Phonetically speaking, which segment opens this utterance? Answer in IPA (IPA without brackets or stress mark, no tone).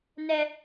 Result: n